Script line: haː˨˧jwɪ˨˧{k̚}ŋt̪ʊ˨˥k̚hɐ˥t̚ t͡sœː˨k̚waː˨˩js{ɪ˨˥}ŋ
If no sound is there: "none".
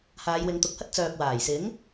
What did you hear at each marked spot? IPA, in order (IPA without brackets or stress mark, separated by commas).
none, ɪ˨˥